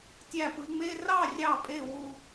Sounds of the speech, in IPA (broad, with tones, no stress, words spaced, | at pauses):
tʲæ˧˩pɯ˩˧ŋ͡me˧˥˧ rɑ˥˨rʲɑ˧˩pʼe˧˩ wu˧˩